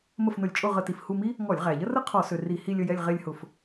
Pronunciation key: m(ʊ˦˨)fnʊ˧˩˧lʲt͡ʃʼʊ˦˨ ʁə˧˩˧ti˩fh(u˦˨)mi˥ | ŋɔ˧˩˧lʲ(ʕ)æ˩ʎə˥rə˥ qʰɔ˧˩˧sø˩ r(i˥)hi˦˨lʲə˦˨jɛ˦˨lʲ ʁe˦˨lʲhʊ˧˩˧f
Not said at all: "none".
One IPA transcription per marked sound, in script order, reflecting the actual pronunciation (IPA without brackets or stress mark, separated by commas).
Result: ə˦˨, u˦˨, ʁ, i˧˩˧